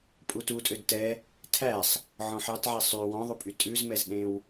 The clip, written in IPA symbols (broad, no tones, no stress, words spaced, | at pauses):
pʼututʼød tɛ | tʰæsˤ | ʕɔ̃ħɑtʕɛ sˤy wɔ̃ðˤupʼy tʼʉzmɛzɗẽw